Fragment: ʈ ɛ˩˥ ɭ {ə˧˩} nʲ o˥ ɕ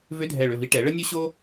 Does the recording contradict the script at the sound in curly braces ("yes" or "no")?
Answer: yes